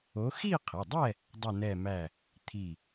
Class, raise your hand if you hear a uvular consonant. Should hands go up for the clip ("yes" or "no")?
yes